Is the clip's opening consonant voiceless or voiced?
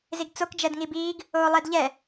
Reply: voiced